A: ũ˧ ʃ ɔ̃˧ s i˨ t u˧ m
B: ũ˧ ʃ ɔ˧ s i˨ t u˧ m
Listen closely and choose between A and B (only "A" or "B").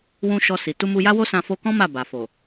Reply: B